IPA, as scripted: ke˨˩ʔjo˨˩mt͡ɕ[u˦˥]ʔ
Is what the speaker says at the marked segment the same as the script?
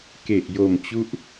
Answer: yes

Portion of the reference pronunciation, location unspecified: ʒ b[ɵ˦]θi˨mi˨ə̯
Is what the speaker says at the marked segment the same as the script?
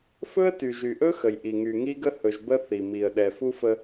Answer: no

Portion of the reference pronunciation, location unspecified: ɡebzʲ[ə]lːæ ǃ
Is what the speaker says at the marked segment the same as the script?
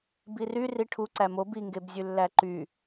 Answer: no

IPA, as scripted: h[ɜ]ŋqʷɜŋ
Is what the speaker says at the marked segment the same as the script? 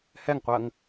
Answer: no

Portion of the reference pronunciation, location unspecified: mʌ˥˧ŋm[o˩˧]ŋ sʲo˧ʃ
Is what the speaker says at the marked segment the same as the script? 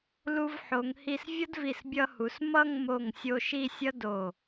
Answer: no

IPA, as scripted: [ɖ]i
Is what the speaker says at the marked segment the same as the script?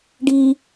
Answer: yes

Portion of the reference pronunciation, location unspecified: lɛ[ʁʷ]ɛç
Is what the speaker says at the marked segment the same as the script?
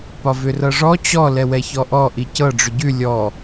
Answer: no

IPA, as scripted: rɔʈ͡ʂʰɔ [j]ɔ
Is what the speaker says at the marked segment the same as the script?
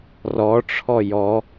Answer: yes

